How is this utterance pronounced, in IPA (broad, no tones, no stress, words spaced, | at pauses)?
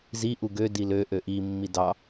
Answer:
zi ʔuɡø dilø ʔøʔi mːidɑ